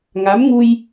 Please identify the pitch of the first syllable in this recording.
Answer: rising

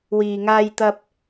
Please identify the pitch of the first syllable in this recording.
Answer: low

